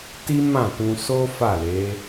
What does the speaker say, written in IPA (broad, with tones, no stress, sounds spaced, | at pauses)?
t i˦ m ã˦˨ t ũ˧ s o˦ f a˦˨ l e˨˦